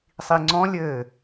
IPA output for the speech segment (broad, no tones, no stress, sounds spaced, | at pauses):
sˤ i ŋ͡ǀ ɔ̃ lʲ ɘː